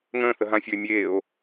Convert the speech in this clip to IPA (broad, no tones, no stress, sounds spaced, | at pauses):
ŋ ə̃ː θ ə ɦ ã fʲ ə˞ e̯ mʲ eː o̯